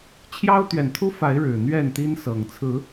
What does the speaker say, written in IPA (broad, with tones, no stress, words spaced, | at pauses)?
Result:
t͡ɕʰjɑ˦ʊ̯t̪ɥɛ˨˩nt̪ʰu˦fa˨˦ɪ̯ ɻɻ̩˨˩n̪ɥɛ˥˨n t̪i˦nsɤ˨˩ŋ t͡sʰɹ̩˨˦